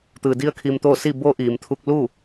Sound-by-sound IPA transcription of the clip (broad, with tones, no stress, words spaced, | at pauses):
t̪ɯː˩di˧ə̯ kʰiː˧mt̪oː˥˨ si˥˨ bo˧˥ʔiː˩m t̪ʰu˧k̚lu˥˨